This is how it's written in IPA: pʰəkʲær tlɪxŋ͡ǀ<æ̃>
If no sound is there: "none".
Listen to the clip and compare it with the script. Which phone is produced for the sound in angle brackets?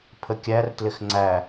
æ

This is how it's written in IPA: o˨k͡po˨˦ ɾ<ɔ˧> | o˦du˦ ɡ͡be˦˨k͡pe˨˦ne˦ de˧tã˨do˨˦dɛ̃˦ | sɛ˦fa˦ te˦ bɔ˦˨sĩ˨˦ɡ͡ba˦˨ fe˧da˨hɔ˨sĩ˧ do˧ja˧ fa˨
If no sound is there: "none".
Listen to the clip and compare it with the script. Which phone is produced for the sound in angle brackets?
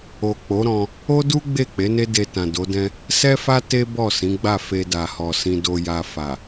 ɔ̃˧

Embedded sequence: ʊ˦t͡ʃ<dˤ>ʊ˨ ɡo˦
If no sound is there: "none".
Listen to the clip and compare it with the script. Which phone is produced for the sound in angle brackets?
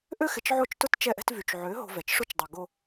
dˤ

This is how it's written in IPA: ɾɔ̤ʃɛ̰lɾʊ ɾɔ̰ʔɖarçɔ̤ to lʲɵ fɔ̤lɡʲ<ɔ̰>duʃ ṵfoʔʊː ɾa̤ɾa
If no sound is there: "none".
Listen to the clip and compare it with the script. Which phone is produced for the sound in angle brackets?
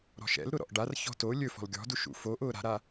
ɔ̤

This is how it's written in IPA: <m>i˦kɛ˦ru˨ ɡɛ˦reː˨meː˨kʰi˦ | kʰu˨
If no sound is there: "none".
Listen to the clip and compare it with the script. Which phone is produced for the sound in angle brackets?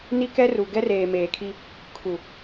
n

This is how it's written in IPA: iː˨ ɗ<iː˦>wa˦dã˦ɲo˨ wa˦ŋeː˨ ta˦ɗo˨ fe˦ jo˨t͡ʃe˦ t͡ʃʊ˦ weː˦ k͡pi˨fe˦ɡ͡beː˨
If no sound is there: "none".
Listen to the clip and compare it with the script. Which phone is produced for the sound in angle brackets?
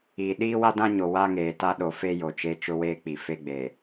iː˦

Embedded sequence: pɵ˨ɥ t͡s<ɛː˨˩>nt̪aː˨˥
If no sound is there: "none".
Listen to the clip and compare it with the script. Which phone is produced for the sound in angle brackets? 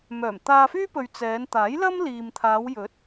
ɛː˨˧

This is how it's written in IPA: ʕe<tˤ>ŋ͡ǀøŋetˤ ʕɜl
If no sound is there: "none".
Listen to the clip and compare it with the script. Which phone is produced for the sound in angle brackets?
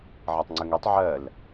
tˤ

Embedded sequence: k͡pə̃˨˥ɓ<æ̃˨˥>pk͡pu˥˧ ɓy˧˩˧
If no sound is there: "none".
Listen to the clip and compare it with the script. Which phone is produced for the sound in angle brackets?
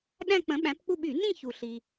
æ̃˨˥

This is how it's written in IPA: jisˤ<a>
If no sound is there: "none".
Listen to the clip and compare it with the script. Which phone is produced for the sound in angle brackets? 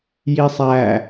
æ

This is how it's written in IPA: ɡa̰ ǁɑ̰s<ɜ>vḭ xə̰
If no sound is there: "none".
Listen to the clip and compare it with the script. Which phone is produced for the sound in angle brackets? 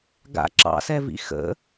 ɛ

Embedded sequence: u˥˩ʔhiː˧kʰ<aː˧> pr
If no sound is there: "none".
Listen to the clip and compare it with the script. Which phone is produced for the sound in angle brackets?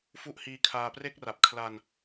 aː˧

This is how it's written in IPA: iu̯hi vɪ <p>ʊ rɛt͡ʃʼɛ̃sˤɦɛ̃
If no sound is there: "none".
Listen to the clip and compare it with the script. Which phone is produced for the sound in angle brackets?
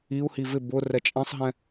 b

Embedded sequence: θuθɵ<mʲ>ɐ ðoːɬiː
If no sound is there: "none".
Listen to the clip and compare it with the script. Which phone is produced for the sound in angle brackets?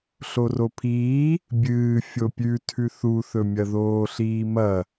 mʲ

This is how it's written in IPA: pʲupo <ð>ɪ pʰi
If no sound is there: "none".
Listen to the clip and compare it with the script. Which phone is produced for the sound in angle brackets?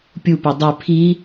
dˤ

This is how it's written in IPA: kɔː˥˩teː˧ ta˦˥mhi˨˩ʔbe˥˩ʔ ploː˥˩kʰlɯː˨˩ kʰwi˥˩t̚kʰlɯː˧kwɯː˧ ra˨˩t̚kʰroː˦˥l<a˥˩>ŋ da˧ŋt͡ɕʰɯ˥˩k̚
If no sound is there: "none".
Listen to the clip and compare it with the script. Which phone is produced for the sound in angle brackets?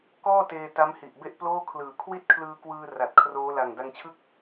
a˨˩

